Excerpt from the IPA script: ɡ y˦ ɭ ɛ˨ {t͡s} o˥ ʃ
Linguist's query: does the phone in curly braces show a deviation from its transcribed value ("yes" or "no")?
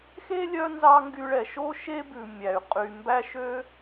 yes